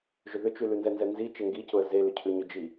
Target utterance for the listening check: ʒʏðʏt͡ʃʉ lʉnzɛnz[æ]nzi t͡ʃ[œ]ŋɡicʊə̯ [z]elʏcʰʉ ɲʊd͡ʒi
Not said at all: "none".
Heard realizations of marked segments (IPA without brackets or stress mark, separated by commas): ɛ, ɛ, z